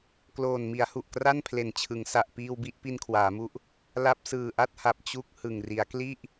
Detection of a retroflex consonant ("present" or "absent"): absent